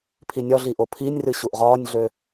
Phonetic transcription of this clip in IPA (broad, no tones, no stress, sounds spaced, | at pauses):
pʰ i nʲ ɒ ɮ i ʔ o pʰ i nʲ r ɨ ɕ u ʔ ʁ ɒː nʲ ɮ ø